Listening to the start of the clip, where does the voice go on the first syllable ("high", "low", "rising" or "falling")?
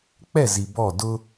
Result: falling